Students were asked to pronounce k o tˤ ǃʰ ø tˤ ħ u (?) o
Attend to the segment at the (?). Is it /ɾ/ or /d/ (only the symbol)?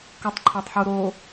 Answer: ɾ